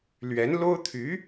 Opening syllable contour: rising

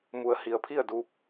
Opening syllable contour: low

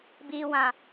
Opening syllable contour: low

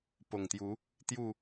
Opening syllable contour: low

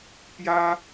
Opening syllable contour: high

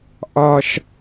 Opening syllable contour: high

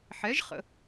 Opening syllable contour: rising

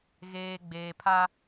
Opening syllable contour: low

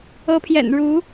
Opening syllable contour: rising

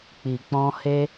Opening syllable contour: low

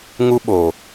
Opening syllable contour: high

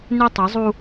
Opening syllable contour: high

